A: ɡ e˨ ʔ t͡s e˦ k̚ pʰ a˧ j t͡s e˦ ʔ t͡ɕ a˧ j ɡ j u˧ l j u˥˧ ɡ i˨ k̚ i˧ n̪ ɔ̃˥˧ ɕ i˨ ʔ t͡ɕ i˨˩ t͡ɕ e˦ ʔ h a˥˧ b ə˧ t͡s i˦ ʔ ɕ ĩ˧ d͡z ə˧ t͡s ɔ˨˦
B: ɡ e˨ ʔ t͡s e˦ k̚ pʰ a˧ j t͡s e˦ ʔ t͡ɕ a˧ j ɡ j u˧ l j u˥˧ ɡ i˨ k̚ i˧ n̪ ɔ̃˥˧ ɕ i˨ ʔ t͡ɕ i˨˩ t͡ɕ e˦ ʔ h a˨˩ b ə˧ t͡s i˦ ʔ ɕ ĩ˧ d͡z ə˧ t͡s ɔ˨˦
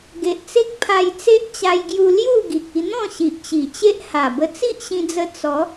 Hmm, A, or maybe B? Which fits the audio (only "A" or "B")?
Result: B